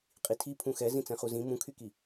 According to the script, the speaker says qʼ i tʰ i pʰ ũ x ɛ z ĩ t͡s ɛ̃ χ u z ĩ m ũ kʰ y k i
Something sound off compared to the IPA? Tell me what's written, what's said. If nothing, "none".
none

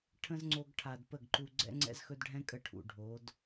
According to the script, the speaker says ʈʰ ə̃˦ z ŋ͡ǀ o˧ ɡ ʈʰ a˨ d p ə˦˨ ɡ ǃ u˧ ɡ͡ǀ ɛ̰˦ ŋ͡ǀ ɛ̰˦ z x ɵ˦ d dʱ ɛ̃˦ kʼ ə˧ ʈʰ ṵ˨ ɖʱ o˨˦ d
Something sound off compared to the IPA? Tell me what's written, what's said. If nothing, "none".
dʱ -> ɖʱ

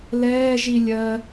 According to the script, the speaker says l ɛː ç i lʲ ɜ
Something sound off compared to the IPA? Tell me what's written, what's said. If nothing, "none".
ç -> ʒ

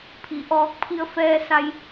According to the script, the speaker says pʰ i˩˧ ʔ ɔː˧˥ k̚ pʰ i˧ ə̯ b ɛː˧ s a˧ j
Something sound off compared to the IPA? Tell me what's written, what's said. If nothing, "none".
b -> f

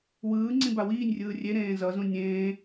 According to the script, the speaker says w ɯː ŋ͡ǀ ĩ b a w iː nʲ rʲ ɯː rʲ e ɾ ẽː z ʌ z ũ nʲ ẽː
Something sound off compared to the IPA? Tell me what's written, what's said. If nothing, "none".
none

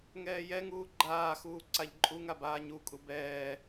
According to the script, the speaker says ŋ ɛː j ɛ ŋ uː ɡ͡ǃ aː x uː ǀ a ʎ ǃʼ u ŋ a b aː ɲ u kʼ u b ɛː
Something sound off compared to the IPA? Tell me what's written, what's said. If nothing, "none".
none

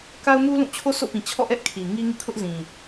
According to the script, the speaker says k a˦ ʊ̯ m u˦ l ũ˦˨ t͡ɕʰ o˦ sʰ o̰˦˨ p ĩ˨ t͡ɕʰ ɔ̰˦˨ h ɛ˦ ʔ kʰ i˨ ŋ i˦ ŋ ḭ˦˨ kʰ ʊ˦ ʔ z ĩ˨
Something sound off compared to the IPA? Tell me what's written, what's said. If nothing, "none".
h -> ʔ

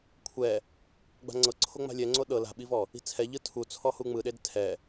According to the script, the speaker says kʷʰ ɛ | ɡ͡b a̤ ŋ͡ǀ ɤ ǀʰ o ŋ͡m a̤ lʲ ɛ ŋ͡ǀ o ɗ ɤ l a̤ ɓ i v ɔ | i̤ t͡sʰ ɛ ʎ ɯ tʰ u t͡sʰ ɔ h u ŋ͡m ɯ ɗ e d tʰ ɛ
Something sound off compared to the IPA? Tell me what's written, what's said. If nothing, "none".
none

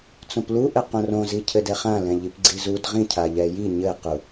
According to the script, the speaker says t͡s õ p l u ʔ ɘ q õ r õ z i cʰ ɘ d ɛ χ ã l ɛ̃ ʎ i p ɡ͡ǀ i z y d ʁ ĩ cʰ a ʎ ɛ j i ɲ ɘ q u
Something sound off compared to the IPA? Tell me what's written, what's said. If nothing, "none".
y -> u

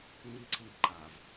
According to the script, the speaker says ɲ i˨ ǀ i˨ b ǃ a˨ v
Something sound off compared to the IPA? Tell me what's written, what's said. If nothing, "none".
none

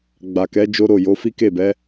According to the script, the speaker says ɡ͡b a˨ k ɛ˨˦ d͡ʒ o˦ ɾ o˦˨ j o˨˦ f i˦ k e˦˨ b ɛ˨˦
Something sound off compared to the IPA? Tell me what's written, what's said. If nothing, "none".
none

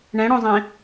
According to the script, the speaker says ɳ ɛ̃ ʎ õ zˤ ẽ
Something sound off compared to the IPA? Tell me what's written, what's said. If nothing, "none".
ʎ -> ɽ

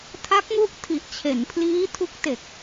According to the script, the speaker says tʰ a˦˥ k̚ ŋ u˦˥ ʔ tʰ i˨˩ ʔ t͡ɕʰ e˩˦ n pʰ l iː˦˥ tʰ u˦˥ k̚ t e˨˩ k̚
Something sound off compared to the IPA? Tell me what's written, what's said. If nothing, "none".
none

